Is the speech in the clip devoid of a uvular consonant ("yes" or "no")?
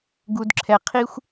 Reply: no